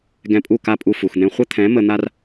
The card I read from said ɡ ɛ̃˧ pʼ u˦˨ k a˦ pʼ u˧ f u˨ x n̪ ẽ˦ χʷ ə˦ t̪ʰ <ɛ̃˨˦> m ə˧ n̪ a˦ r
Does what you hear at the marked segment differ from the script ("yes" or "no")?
no